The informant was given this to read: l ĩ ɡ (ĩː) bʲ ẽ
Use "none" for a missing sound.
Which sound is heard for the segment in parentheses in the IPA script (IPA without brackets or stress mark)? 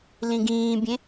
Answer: ĩː